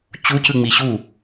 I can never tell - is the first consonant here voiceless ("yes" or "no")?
yes